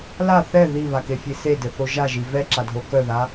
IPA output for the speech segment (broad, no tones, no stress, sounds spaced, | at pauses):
l a θ ɛ ð i β a k e fʲ e s e d ɘ θ o ʒ a ʒ i v ɛ ǁ a dʱ o k œ ð a